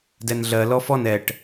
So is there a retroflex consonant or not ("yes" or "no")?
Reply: yes